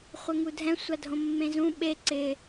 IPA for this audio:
χʷ ɛ ŋ u dʱ ɛ̃ sʷ a dʱ õ mː ẽ z ũ ɓ e ǀ ɪ

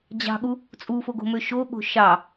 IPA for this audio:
d͡ʑ ɑ̤ ɠ u | t͡sʼ u f o ɡ o̤ m ø ʃ o ɠ o̤ ʃ ɑ

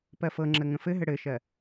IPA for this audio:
p ɜ f ɤ ŋ͡ǁ ə ŋ ə̃ f ɘ ɦ ɘ ɽ ɘ ʃ ɜ

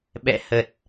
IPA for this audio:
ɓ ɛ̰˧˨ h ə˨˩ t̚

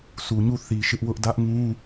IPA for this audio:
sʰ u˨ ɲ u˦˨ θ i˨ ʃ ɪ˦ ʔ w ʊ˦ ʔ d ä˦ ʔ ŋ ũ˦

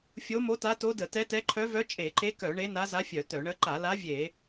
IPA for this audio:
fʲ o˧˥ m o˧˥ t a˧˥ t o˧˥ d ə˧˩˧ t ɛ˧˥ t ɛ˧˥ ǃʰ œ˧˥ v œ˧˥ t͡ʃʼ e˧˩˧ ǃ e˧˥ k œ˧˩˧ ɳ e˧˥ n a˧˥ z a˧˥ fʲ œ˧˩˧ t œ˧˩˧ ɳ ə˧˥ ǃ a˧˩˧ l a˧˥ vʲ e˧˩˧

